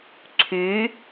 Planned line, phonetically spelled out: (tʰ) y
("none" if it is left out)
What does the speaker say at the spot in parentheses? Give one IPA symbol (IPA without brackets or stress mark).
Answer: ǀʰ